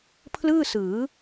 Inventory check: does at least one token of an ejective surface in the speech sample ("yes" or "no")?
no